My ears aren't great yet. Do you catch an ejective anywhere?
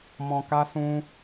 no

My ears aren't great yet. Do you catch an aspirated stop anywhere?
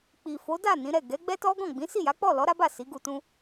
no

